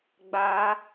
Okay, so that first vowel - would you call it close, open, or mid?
open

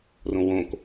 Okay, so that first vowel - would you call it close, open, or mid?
mid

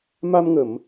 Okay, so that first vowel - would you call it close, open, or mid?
open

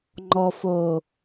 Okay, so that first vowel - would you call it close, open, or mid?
mid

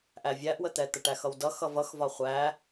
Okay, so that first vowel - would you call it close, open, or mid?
open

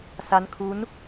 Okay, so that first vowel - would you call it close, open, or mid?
open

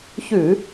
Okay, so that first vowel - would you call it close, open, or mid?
close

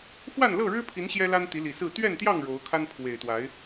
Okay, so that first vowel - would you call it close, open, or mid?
open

